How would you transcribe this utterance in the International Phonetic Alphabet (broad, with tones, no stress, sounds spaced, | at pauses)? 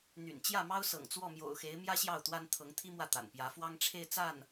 n̪ y̰˨˩ n t͡ɕ j ä˥˩ m ɑ˥ ʊ̯ s ɤ̰˨˩ ŋ t͡s w ɔ˥˩ m j o̰˨˩ ʊ̯ x e˧˥ ɪ̯ m j ä˥ ɕ j ɑ˥˩ ʊ̯ t̪ w a˥ n t̪ʰ ɤ˧˥ ŋ t̪ʰ i˥ m w ä˥˩ t̪ a̰˨˩ n p j ä˧˥ f w ɑ˥ ŋ ʈ͡ʂʰ e˥˧ ɪ̯ t͡s a˥˩ n